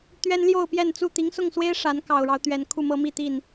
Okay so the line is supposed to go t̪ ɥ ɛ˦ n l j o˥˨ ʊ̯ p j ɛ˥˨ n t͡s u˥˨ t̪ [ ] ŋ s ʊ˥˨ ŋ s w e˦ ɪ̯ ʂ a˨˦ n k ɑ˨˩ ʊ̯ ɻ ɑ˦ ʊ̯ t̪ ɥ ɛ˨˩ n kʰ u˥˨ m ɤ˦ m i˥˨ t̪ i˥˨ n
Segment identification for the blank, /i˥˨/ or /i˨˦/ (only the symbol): i˨˦